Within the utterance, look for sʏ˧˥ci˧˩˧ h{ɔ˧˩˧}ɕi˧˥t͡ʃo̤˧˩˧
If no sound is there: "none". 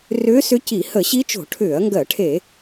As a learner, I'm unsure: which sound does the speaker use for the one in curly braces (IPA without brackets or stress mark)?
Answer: ə˧˩˧